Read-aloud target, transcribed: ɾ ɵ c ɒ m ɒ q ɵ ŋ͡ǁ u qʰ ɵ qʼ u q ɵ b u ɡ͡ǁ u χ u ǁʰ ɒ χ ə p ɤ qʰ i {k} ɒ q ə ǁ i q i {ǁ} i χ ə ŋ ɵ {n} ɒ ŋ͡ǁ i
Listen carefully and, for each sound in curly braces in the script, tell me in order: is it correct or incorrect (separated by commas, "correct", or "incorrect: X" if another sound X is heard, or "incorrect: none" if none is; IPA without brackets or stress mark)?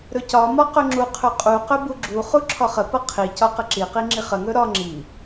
incorrect: c, incorrect: ŋ͡ǁ, incorrect: ɾ